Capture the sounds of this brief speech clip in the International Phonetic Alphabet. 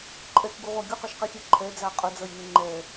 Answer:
ǃʼ ɛ k ɡ u ʁʷ æ ɡʲ u q ɔ ʃ q i xʲ ɛ ǃʰ ɛ d͡z ɑ qʼ ʊ d͡z ʌ j n ɪ ŋ͡ǃ ɛ

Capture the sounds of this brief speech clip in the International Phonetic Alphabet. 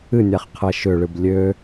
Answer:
ɨ nʲ a χ qʰ ɛ ʃ ʏ ɭ ɨ b lʲ ø

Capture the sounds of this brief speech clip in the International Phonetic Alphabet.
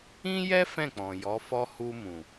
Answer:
ĩ˦ j ɛ˦ f ɛ̃˦˨ k͡p ɔ̃˨ j ɔ˨˦ f ɔ˦ h u˧ m ũ˨

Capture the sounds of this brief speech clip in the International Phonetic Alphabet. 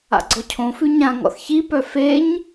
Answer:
a̰ ɡ͡ǀ ɔ cʰ õ f ʉ ɲ ã ŋ ɔ̰ θ ç i p œ f e ɲ

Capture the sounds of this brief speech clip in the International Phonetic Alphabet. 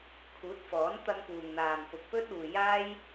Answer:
kʰ uː˨˥ t̚ f ɔː˨˥ n t̪ ɐ˧ ŋ p uː˨ ŋ n̪ aː˨ m p ʊ˨ k̚ p ɵ˥ t̚ uː˨ j aː˥ j

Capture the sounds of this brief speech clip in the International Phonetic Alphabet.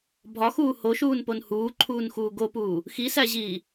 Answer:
bʱ ɒ x uː h o ʃ uː n p o n h uː ǃʰ uː n x uː ɡ o p uː | x i s æ ʑ iː

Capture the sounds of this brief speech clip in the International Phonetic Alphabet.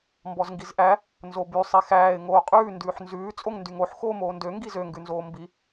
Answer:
m b ɔ z ŋ ɡ i z ʔ æ | n z o b y sˤ i x æː ɪ̯ ŋ oː qʼ ʉː n d ʉː ħ n z ʉː t͡sʼ o ŋ n d y ŋ o ħ x oː m oː n d ø ŋ ɡ i z ø ŋ ɡ ʉ n z oː m b i

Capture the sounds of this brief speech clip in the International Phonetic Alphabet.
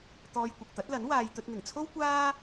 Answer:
t̪ ɔː˧ j kʷ ɪ˨ k̚ t̪ ɐ˨˥ t̚ l ɐ˨˥ n w aː˧ j t̪ ɵ˧ t̚ n̪ ɪ˨˩ ŋ t͡sʰ o˥ w kʷ aː˥

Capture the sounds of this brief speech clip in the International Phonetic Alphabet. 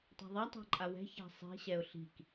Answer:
tˤ a̤ ðˤ a tˤ a̤ ǃʼ a w ɛ̤ ç a̤ sˤ i̤ ɕ ɛ ʊ̯ ɬ i̤ k

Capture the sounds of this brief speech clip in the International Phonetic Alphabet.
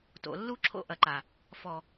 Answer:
t o̰˨ lː u˦ ǁʰ o̰˦ ʔ ɐ˨ ǃ a˨ | f ɔ˨

